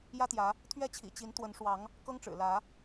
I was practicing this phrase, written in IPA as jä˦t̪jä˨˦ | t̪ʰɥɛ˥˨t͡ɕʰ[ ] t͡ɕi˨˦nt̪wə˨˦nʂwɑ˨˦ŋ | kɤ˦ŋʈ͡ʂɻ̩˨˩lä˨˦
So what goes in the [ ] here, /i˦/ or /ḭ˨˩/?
ḭ˨˩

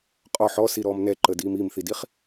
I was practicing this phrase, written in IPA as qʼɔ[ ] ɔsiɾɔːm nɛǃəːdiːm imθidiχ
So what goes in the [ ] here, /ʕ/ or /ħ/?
ħ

